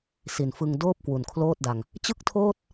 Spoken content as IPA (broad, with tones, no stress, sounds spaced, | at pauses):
s i˨˩ n f ɯ˧ ŋ d oː˥˩ p̚ k w u˨˩ n kʰ l oː˥˩ t̚ d a˧ ŋ | t͡ɕ ɯ˥˩ k̚ tʰ oː˥˩ t̚